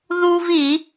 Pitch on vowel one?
high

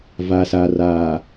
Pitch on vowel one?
low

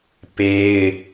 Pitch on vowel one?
high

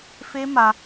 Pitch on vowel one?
high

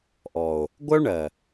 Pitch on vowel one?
low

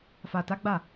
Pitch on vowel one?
low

